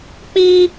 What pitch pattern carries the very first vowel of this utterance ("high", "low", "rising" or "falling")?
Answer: high